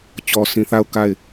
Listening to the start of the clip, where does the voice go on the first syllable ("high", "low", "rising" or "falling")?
low